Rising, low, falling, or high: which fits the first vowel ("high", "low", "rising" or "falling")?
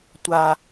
low